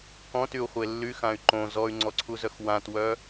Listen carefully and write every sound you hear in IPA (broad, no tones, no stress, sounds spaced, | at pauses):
k ɔ̃ t y u̯ χʷ e lː y x ã y̯ ǃ õ z ɔ y̯ ŋ͡ǀ ɔ ǀʰ u z œ x w ã t w œ